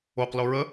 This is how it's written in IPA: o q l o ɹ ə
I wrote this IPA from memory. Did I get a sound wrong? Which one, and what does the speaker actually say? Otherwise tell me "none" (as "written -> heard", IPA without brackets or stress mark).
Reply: none